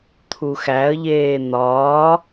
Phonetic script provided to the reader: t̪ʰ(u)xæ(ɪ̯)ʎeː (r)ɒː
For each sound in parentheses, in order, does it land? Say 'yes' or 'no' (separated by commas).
yes, no, no